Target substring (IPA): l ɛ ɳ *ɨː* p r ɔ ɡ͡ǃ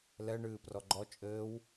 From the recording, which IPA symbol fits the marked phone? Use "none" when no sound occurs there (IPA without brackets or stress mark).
ɨː